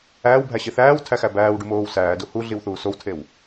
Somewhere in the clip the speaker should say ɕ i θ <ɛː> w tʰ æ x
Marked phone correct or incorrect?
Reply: incorrect